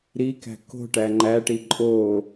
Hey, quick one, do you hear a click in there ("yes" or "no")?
yes